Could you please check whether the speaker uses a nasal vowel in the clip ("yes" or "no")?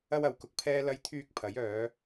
no